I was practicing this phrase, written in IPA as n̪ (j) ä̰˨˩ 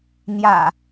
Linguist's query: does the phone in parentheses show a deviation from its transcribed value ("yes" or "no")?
no